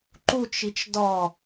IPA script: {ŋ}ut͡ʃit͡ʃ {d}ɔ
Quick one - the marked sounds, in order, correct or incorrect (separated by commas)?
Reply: incorrect, correct